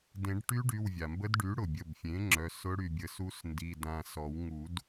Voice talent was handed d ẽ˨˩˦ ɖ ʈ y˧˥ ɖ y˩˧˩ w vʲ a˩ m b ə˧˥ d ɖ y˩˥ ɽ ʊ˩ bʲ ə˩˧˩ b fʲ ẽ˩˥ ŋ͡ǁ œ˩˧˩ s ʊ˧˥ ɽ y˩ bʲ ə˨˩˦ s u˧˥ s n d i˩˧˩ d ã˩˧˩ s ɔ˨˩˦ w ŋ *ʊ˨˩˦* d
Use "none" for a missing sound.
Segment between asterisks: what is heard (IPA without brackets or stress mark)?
u˨˩˦